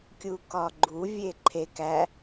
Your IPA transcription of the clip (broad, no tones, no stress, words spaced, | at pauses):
kʲukɒɡ͡ǃu vʲeǃʰek æ